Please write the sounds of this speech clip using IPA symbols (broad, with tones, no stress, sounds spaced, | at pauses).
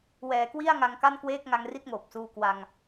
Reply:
w ɛː˩˦ k w i˥˩ a̯ ŋ a˧ ŋ k a˥˩ n k w eː˥˩ k̚ ŋ a˧ ŋ r i˥˩ t̚ ŋ oː˨˩ p̚ s uː˧ k w a˧ ŋ